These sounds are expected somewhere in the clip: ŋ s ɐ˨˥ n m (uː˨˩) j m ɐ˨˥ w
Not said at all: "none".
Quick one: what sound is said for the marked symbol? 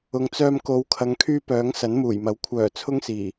uː˨˩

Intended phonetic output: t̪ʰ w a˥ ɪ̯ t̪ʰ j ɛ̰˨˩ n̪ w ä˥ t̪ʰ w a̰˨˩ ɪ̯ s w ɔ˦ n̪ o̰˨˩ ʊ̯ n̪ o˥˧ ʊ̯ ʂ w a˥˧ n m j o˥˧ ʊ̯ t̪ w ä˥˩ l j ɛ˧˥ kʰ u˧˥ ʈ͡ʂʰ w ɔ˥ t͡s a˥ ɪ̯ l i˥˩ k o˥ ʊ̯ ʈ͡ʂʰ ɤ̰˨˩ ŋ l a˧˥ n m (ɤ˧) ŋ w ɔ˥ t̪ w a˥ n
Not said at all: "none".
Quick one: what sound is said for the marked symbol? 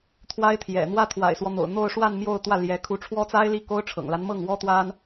ɤ˥˩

